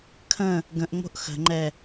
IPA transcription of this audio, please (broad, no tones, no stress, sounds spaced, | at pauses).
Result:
kʰ ə̃ | ɡ ə̃ ʔ ŋ͡m o̤ ʔ x ə̤ ŋ͡ǃ ɛ